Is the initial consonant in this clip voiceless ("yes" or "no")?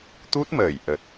yes